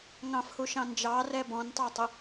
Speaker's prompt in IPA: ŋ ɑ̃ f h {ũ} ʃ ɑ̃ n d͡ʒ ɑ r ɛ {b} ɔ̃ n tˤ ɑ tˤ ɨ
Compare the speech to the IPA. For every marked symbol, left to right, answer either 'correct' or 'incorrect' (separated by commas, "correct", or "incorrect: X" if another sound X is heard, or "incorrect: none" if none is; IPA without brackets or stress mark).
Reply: incorrect: u, correct